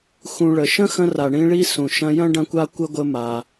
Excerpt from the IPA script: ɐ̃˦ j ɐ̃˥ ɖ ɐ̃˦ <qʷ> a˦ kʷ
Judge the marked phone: incorrect: kʷ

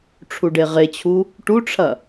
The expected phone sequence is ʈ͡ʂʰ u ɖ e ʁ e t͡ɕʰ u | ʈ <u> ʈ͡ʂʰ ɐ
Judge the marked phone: correct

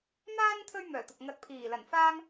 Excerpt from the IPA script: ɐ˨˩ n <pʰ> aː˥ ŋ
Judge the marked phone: incorrect: f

